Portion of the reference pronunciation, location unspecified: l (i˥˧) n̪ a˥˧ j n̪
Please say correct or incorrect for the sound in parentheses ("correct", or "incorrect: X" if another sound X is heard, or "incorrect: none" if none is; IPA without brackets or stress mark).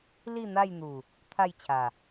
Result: correct